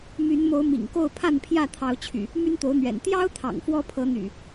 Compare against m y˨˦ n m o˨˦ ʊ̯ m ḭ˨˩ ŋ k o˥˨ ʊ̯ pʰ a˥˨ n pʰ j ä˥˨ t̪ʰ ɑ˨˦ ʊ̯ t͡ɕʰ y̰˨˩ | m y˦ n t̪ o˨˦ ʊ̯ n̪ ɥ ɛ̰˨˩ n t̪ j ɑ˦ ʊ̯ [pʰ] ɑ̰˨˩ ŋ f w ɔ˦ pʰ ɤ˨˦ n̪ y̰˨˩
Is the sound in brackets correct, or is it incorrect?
incorrect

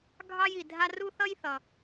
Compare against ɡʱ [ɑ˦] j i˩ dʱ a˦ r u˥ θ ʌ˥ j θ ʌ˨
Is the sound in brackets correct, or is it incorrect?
correct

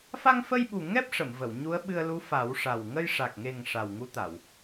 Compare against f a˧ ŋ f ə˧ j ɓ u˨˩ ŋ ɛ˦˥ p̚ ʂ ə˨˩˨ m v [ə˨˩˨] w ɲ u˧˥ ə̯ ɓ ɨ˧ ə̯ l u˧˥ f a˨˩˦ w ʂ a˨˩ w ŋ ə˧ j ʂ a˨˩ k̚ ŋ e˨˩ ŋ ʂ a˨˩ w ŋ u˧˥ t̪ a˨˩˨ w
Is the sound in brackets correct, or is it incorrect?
correct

